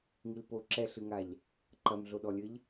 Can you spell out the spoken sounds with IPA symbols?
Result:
ŋilpo ǁɛɬɨŋaʎ | ǃɐmɮoɗɔlʲɘʎ

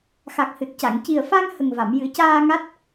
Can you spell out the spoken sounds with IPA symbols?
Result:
xa˨˩k̚hɨ˨˩t̚ca˨˩˨ŋ ci˨˩ə̯fa˧ŋ hə˨˩ŋva˨˩˨m jɨ˨˩˦caː˧ ŋa˦˥t̚

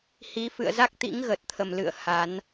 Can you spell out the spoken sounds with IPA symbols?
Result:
hi˨˦fɨ̰˧˨ə̯za˦˥k̚ t̪ḭ˧˥ŋɣə˨˩t̚t̪ʰə˨˩mlɨ̰˧˨ə̯ ha˨˦n

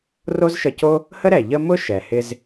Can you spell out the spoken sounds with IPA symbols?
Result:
ro˥zʃə˧co˥ | hə˥ɾɛ˩ ʎə˥ mʊ˥ ʃɛ˩hɪ˧z

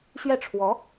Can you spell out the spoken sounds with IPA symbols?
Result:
ɕɥɛ˥˩ʈ͡ʂʰwɔ˧˥

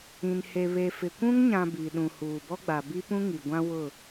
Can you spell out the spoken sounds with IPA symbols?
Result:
ĩ˨n he˨βe˨fɪ˨ kʷũ˦ŋɲã˨ biː˨ɗũ˨huː˨ bɔ˦ɡ͡ba˨ bi˦pũ˦ŋi˨ɡʷã˦ wʊ˦˨

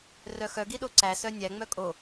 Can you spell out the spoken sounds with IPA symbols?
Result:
rœxœɡi ɗoǀæsœ nʲæŋ͡mœ kʼo

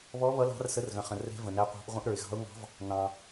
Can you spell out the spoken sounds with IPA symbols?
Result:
βɔ˧˥ βʌ˧˥lɑ̤˧˥r sə˧˥rɣə̃˨χə̃˨ rɛ̤˧˥və̃˨næ˧˥qʷɑ̤˧˥ʔ ʁʷə̃˧˥ʔɾə˞˨ɪ̯ɣɑ̤˧˥ʊ̯ŋɑ̤˧˥v | nɑ̃˨

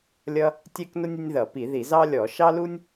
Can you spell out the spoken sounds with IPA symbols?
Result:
lʲʌ˥ | tʲɛ˥knʊ˥nʲ ə˥nʲðʌ˧˩˧pi˧˩˧ ði˧˩˧zɑ˥lʲɔ˧˩˧ ʃɑ˥lu˥nʲ

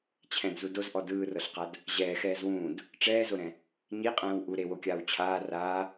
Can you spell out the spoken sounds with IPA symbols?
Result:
t͡ɕʰɛ̃dzu dozʔɔ dɯːrɤɬqad | ʑɛːxɛːz wũːd | ʈ͡ʂɛːzoɾɛ̃ | ɲiqʼɛ̃ːw ʔu ɾewokʲaːw t͡ɕʰaː raː

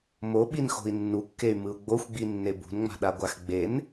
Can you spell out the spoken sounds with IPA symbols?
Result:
moɓinxo̤i̯ nːukːey̯mɯu̯ ɡ͡boxʷɡ͡binːe bṳnŋ͡ma̤ɗaɡʷax ɡ͡ben

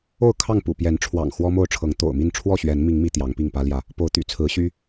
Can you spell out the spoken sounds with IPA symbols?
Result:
o˥˨ʊ̯kʰɑ˥˨ŋpṵ˨˩pjɛ˨˦n ʈ͡ʂʰwɑ̰˨˩ŋ xwɔ˦mo˥˨ʊ̯ʈ͡ʂʰɤ˨˦ŋ t̪o̰˨˩ʊ̯mi˥˨n ʈ͡ʂʰwɔ˥˨ɕɥɛ˨˦nmi˨˦ŋ mi˨˦t̪jɑ˨˦ŋpi˥˨ŋ pä˦ljä˥˨ | po˨˦ʊ̯t̪y̰˨˩t͡sʰɹ̩˨˦ ɕy˦

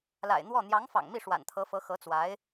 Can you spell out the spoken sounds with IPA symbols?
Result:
la̰˨˩ɪ̯n̪wɔ˥˩ n̪jɑ˧˥ŋfɑ̰˨˩ŋmi˥˩ ʂwa̰˨˩nt̪ʰɤ˧˥fɤ˧˥ xɤ˧˥t͡swa˧˥ɪ̯

